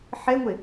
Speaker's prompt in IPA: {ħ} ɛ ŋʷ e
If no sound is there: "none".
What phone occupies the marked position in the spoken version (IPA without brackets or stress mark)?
ħ